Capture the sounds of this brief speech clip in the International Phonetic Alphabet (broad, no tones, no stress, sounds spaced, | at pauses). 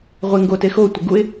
ʁʷ e ŋ ɡ o t e x o tʷ i ɡ u ɪ̯